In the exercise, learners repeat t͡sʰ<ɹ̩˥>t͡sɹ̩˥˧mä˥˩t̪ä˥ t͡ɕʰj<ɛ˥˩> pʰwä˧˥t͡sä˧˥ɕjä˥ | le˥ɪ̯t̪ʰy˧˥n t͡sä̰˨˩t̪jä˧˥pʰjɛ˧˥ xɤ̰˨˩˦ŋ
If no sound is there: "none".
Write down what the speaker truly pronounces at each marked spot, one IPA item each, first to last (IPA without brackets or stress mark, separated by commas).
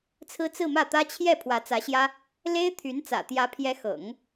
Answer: ɹ̩˥, ɛ˥˩